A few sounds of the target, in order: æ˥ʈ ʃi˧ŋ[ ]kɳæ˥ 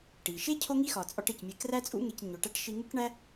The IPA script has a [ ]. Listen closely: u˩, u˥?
u˥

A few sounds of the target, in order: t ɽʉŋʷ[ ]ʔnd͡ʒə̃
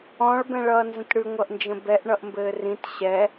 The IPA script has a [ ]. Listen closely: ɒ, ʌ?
ʌ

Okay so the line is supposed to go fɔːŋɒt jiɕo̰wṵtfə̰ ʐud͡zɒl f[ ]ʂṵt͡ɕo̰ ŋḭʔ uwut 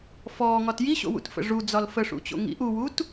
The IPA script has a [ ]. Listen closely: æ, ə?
ə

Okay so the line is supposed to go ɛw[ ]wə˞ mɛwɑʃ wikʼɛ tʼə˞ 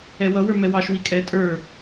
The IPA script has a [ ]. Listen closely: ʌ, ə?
ʌ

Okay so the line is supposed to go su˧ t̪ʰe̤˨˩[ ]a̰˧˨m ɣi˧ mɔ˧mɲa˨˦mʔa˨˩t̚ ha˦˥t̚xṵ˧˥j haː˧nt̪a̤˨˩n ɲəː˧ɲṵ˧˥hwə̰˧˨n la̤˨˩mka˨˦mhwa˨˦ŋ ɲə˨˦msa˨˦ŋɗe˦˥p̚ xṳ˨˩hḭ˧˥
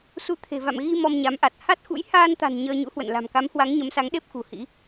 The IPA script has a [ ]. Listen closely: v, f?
v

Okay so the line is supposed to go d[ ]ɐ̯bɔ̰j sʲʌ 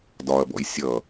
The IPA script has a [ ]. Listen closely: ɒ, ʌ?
ɒ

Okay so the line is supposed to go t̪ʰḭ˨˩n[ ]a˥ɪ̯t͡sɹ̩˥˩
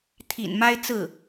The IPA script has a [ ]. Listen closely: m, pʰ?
m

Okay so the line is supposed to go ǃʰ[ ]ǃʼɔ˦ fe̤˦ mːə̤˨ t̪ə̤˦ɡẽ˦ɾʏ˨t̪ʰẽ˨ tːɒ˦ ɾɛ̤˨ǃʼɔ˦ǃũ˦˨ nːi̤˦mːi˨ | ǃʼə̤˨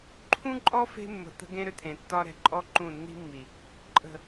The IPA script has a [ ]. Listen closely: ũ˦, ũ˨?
ũ˦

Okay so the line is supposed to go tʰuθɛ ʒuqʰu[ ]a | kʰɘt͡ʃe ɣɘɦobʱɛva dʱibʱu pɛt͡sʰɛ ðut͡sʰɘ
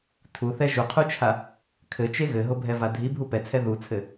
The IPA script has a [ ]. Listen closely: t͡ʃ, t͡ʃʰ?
t͡ʃʰ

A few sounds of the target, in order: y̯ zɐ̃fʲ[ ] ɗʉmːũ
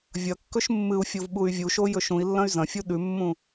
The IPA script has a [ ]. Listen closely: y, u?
u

